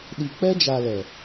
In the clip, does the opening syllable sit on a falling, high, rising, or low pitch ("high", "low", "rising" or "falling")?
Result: low